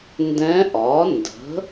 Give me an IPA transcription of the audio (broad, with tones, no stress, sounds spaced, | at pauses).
n d ɛ̃˧˥ ʔ ɒ˩˥ n d ə̤˩˥